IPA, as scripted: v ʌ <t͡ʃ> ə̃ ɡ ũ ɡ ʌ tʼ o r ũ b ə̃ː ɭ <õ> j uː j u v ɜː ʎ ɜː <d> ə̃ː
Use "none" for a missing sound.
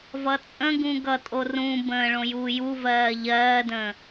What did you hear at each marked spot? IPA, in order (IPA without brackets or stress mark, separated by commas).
t͡sʼ, õ, d